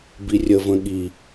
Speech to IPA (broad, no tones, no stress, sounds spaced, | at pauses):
b i rʲ ə v ə̃ ɠ i